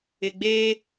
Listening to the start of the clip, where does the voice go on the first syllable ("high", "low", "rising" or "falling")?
low